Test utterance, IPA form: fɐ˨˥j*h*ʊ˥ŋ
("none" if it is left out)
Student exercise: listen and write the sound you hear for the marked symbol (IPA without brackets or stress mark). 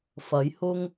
h